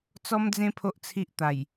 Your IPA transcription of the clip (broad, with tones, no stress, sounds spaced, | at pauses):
t͡s ɔ˦ m d͡z ẽ˦ pʰ o˦ ʔ t͡sʰ i˦ ʔ t̪ a˨˩ j